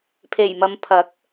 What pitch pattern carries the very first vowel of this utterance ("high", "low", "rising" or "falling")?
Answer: low